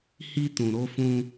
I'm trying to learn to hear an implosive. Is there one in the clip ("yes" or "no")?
no